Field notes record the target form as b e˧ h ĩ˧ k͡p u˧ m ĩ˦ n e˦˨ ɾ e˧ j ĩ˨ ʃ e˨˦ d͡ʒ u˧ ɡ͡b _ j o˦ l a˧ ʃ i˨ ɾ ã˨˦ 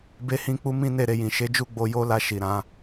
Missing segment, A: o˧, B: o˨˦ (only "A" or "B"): A